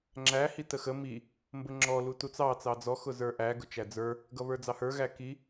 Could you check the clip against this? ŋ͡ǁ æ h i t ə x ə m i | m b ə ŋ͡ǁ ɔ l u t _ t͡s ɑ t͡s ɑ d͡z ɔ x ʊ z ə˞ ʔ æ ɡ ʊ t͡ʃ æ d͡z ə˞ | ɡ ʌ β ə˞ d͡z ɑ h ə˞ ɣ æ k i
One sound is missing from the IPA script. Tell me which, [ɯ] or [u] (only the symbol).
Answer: u